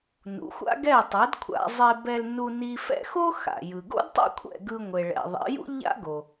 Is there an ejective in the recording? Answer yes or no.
no